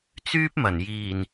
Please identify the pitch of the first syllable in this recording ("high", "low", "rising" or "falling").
high